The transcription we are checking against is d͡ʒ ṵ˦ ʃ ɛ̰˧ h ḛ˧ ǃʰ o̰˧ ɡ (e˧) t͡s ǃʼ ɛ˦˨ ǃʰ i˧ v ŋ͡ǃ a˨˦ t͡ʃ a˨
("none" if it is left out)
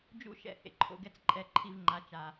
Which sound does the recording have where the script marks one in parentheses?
ɛ˧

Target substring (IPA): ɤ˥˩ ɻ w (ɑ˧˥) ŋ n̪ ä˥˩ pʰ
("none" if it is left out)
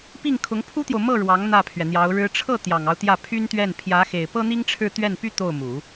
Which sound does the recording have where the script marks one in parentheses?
ɑ˧˥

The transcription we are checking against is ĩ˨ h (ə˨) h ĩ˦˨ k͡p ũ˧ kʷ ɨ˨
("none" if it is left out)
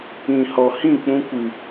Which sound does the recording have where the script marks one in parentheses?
ɔ˨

